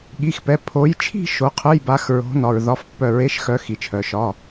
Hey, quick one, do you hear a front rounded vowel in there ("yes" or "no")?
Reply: yes